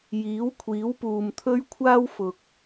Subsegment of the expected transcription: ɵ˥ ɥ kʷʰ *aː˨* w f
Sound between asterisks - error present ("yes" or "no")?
yes